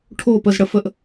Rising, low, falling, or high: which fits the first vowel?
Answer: falling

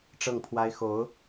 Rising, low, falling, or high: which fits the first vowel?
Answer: falling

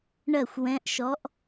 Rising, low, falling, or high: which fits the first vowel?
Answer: falling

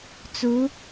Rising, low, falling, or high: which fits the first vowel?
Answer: rising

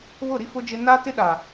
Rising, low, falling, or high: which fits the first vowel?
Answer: falling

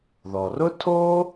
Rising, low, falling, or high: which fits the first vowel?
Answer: low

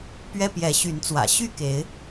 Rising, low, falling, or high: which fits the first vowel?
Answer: high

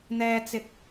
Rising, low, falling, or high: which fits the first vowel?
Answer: high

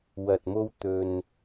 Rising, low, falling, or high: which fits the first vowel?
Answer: low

